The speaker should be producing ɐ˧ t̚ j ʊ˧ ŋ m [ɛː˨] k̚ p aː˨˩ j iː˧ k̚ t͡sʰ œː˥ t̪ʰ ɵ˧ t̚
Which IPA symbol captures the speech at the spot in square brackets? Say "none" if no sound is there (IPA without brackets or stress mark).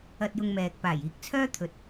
ɛː˨